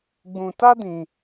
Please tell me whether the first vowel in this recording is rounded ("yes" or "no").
yes